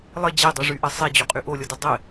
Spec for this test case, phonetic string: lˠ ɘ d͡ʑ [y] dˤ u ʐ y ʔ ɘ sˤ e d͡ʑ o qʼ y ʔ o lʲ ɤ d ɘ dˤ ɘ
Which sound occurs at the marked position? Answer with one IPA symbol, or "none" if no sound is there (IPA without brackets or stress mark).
e